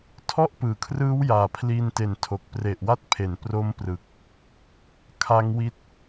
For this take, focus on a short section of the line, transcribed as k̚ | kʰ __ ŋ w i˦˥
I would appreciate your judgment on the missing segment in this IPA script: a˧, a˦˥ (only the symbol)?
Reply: a˦˥